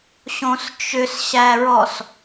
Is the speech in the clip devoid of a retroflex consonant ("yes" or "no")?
yes